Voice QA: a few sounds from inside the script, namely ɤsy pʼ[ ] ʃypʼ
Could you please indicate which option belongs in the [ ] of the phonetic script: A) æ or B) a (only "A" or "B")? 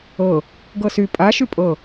B